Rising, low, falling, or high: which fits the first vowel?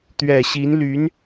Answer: low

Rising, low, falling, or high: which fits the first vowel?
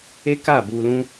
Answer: high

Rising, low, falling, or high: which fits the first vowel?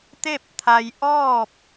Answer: falling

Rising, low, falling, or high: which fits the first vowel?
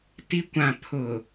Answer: low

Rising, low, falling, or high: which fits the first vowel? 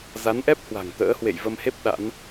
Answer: rising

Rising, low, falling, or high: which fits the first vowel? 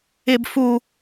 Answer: low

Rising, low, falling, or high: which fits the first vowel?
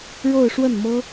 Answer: falling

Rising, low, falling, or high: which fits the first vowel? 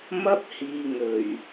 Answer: high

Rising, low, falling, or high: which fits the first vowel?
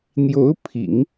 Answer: rising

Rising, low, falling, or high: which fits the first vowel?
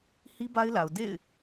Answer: high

